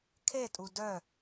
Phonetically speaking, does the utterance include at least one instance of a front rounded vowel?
yes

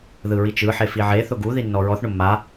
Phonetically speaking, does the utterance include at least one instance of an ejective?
no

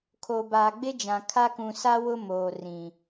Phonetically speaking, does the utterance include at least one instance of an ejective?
no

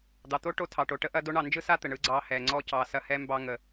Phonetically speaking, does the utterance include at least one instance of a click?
yes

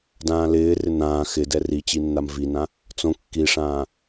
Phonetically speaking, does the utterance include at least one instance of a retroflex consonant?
yes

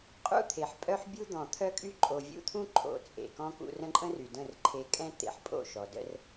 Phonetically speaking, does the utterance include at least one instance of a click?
yes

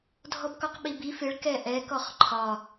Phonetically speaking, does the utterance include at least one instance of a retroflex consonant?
yes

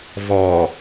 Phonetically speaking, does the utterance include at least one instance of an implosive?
no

